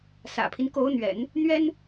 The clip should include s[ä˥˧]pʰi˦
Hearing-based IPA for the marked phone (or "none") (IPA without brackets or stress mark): ä̰˨˩